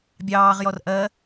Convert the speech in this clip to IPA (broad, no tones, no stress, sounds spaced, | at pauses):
bʲ ɑː ʁ j ɔ r ʔ ɜ